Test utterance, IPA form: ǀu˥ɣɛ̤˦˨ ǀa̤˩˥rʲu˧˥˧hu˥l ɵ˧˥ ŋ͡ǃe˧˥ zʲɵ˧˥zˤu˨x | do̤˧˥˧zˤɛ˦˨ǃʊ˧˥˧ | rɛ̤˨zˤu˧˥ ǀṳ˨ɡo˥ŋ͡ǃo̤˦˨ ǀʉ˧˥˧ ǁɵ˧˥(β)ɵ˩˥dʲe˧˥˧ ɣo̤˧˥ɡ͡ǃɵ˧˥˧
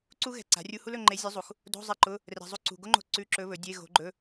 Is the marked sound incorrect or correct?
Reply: correct